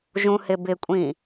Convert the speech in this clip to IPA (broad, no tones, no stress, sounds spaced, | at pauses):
ʒ ũ h ɪ b ɪ kʷʼ ĩ